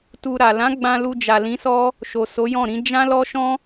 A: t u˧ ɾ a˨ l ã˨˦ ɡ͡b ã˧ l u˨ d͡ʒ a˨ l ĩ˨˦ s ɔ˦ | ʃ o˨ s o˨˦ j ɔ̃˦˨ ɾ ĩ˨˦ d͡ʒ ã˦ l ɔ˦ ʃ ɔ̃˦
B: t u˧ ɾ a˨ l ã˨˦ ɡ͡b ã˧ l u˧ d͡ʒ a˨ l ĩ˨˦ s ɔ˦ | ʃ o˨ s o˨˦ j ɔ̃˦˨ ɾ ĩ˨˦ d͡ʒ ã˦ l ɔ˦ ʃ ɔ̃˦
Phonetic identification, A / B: B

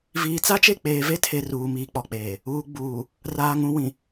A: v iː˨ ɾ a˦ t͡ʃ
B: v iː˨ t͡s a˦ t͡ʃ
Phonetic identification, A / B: B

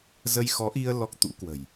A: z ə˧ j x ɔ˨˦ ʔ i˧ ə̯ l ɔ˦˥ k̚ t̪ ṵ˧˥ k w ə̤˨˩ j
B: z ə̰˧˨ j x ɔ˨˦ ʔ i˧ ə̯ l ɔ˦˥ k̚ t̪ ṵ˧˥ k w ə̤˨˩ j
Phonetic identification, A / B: A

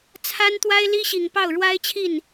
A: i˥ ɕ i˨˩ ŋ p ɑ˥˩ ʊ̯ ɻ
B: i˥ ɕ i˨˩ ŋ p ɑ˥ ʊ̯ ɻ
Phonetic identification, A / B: A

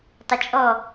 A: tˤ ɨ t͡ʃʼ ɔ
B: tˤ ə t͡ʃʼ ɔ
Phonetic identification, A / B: B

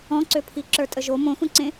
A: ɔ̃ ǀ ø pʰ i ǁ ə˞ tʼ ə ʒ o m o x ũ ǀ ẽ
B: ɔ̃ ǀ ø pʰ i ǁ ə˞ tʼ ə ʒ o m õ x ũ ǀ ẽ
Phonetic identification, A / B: B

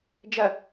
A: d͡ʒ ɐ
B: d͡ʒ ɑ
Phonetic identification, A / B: A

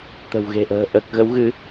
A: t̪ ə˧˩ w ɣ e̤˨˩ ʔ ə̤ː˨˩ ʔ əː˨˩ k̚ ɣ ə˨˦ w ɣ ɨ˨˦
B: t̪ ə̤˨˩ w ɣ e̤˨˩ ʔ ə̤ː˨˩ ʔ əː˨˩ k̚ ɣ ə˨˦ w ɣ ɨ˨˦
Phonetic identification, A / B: B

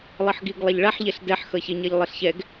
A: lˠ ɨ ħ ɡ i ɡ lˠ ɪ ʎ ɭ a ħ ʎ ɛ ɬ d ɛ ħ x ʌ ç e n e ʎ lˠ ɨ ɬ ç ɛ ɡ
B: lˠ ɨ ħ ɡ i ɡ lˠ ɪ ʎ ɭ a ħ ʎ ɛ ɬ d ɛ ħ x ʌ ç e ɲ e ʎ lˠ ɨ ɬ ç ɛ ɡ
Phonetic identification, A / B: B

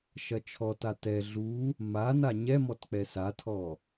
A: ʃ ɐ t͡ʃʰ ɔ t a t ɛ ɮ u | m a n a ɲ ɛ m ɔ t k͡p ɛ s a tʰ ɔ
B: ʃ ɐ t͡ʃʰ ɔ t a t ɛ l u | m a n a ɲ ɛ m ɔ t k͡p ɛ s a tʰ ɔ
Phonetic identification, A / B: A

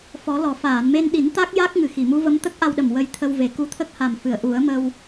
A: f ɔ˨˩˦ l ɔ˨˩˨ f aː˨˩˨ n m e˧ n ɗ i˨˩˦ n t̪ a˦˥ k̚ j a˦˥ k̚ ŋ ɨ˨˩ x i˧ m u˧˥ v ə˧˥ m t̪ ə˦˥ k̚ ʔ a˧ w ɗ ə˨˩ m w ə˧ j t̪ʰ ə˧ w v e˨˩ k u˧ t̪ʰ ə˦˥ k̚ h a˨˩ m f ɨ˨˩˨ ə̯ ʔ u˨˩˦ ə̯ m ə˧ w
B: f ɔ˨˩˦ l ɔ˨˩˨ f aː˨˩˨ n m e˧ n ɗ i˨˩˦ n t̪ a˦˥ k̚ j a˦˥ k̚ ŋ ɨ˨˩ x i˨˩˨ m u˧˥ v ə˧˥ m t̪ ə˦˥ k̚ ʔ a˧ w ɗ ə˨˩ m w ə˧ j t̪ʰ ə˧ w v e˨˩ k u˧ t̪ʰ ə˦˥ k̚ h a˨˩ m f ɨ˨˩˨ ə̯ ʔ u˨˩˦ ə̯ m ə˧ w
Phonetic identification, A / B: B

